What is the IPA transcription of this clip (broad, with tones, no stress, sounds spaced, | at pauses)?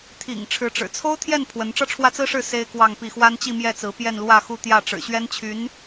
t̪ʰ ḭ˨˩ ŋ ʈ͡ʂʰ ɻ̩˧˥ ʈ͡ʂ ɻ̩˨˩ t͡sʰ o˥ ʊ̯ t̪ʰ j ɛ˥˩ n pʰ w ə˧˥ n ʈ͡ʂ ɤ˥˧ ʈ͡ʂʰ w ä˥˩ t͡s ɹ̩˥ ʂ ɻ̩˥˩ s e˥ ɪ̯ k w ɑ˥˧ ŋ p i˥˩ x w a˥ n t͡ɕ i˥˧ m j ɛ˥˩ t͡s ɹ̩˧˥ p j ɛ˥˧ n l w ä˥˧ x u˥˧ t̪ j ä˥˩ ʈ͡ʂ ɻ̩˨˩ ɕ ɥ ɛ˥ n t͡ɕʰ y˧˥ n